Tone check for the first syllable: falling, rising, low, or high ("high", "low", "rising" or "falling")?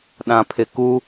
low